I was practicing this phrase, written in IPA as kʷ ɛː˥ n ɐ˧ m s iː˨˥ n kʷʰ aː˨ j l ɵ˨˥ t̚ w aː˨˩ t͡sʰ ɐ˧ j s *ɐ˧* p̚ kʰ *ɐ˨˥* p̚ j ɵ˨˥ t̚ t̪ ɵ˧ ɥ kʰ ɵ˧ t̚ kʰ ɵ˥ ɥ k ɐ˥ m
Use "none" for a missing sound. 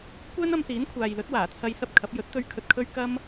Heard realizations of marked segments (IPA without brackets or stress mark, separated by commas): ɐ˧, ɐ˨˥